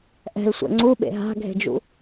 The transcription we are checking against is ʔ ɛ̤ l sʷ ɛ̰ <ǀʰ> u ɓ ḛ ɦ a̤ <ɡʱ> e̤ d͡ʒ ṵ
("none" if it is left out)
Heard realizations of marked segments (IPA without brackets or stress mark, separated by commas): ŋ͡ǀ, ɡʱ